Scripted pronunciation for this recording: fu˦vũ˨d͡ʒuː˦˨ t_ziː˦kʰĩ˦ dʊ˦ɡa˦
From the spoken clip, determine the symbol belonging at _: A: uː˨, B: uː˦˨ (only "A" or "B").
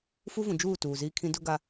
A